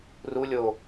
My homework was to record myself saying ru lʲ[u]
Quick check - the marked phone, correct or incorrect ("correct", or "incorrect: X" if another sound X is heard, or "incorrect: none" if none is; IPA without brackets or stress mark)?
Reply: incorrect: o